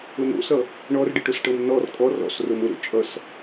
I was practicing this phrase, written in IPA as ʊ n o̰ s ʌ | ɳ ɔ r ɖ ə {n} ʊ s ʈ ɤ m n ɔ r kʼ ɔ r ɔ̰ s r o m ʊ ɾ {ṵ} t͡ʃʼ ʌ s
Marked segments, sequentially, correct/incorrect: incorrect, incorrect

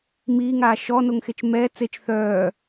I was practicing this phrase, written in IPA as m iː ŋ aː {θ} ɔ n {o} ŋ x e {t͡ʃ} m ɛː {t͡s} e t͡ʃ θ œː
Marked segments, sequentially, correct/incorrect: incorrect, correct, correct, correct

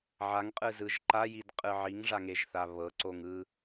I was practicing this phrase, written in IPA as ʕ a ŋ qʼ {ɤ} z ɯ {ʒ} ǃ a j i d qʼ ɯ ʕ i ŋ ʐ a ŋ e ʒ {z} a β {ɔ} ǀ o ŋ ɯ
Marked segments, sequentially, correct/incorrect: incorrect, correct, incorrect, incorrect

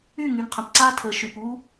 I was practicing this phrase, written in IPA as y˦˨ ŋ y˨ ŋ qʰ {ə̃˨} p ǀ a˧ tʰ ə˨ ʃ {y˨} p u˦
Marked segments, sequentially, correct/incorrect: correct, correct

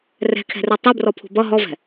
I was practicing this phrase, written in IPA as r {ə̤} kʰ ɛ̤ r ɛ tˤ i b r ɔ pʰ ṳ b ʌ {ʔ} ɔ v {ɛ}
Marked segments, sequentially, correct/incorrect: incorrect, incorrect, incorrect

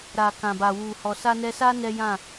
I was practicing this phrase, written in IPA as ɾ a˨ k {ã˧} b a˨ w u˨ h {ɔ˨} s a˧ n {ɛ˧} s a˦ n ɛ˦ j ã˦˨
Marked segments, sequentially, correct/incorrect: incorrect, correct, correct

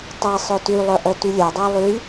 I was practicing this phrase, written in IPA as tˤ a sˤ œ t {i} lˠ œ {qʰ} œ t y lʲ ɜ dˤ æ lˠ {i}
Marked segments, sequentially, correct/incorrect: incorrect, incorrect, incorrect

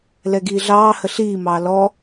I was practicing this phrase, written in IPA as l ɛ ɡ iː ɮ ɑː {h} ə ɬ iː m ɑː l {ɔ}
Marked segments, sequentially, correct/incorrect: correct, correct

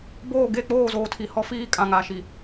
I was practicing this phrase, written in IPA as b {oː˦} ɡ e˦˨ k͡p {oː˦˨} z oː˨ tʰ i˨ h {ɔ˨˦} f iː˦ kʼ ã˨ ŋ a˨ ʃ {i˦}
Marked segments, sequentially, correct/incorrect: incorrect, correct, incorrect, incorrect

